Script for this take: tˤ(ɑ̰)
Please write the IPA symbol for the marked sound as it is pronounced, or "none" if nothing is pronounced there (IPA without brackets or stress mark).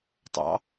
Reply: ɑ̰